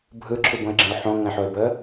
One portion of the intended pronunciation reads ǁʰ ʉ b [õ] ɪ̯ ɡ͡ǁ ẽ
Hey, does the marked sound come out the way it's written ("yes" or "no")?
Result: yes